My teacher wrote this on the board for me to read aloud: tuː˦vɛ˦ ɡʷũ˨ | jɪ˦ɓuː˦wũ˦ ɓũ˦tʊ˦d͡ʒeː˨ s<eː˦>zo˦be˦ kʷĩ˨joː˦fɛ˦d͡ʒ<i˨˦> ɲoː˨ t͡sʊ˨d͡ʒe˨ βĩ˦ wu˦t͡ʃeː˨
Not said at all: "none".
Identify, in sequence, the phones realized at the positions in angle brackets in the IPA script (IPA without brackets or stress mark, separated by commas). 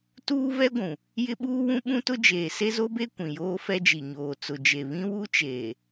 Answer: e˦, i˨